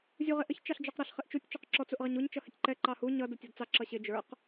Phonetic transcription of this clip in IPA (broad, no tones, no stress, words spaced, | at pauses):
zʲuʁɪʔəç t͡ʃɑɬd͡ʒɔqɾʌɬ χɪʔt͡ʃutʲ t͡ʃɔqǁɔ t͡suʔʁɛɲuɲ t͡ʃʌhɪtʲǃɛ ǃɑhu ɲʌ dətʲɔdt͡sɑ ǁʌɕɪ d͡ʒə˞q